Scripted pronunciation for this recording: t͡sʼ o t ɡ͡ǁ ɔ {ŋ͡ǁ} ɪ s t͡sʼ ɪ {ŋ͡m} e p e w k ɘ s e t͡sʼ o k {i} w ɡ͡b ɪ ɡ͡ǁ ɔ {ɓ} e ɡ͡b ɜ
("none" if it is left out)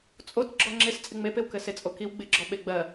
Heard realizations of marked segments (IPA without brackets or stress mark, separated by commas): ŋ͡ǁ, ŋ͡m, i, ɓ